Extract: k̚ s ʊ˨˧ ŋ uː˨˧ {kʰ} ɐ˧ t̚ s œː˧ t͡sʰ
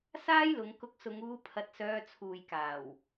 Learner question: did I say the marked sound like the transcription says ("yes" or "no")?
no